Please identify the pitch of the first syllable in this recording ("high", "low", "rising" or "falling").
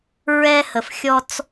high